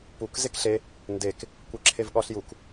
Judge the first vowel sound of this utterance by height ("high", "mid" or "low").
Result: high